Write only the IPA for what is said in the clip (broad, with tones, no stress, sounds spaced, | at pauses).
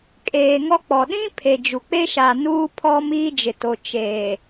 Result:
kʼ eː˨ ŋ ɔ˦ k͡p ɔ˨ ɗ ĩ˦ pʰ e˨ d͡ʒ u˨ k͡p e˦ ʃ a˨ n uː˦ pʰ ɔ˦ m iː˦ d͡ʒ ɪ˨ t o˨ t͡ʃ eː˨